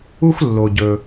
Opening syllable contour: high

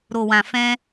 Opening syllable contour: low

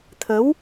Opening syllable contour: rising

